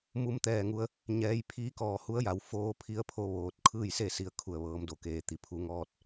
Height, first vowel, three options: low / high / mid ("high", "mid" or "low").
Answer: high